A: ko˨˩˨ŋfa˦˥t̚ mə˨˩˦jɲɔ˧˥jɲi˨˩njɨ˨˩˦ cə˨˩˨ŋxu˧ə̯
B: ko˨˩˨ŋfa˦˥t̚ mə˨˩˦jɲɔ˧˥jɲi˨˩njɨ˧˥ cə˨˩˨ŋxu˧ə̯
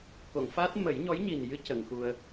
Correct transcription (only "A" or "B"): B